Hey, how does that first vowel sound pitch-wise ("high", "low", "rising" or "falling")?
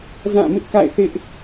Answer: falling